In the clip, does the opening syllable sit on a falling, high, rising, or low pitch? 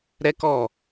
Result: high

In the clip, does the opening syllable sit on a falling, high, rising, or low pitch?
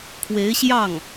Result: rising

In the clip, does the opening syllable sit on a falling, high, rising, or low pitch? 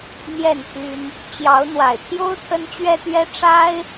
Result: falling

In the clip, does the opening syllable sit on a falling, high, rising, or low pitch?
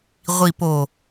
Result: low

